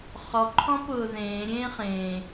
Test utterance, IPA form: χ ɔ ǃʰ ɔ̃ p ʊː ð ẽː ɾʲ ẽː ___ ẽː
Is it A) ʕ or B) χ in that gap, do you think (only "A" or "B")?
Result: B